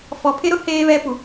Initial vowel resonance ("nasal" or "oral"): oral